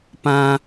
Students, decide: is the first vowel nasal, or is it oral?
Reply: nasal